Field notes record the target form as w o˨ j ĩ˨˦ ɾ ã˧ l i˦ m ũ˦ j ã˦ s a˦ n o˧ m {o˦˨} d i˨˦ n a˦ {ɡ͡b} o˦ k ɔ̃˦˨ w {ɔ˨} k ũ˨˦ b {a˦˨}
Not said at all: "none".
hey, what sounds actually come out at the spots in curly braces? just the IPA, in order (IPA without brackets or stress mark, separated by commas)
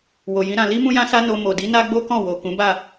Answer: o˨, ɡ͡b, o˨, a˦˨